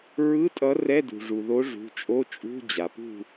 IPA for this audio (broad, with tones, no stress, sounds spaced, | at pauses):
ɹ ɯ˧˥˧ tʼ ʌ˨˥ r ɛ˧˥˧ d ṳ˩ ʐ u˩ ð o˨˥ ʐ ṳ˩˧˩ t͡ʃʼ o˧˥˧ t͡ʃʼ ṳ˧˥˧ d͡ʑ a˩ p ṳ˥˨